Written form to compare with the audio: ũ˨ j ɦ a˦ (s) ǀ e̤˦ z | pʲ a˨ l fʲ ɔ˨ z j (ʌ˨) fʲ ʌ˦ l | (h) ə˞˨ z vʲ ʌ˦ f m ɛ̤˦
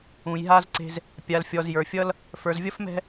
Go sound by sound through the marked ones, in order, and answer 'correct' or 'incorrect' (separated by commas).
incorrect, incorrect, incorrect